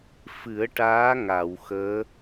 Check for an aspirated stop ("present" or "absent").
absent